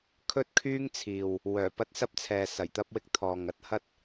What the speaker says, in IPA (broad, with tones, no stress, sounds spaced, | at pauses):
kʰ ɵ˥ t̚ kʰ yː˥ ŋ t͡sʰ iː˨ w | w œː˨˩ p ɐ˥ t̚ s ɐ˥ p̚ t͡sʰ ɛː˨ s ɐ˨˩ j t̪ ɐ˥ p̚ w ɪ˥ k̚ t̪ʰ ɔː˨ ŋ ɐ˥ t̚ h ɐ˥ t̚